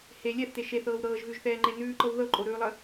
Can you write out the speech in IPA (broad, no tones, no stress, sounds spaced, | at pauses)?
h e lʲ ɛ θ t e ʃ e θ ɤː w ɾ ɤː ʒ ɣ ʉ ʒ θ ɛː ŋ͡ǃ e n ʉː ǃ ɤ w ð ɤ ǃʼ o ɾ ʉː lˠ ə